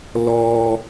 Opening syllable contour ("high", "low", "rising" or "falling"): high